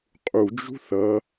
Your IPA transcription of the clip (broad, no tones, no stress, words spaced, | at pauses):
qʼud͡ʒṳ θʌ